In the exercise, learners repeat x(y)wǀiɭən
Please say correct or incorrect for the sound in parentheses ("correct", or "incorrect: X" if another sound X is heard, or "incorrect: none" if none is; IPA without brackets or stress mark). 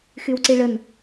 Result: correct